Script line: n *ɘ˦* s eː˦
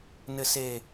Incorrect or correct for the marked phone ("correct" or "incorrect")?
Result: correct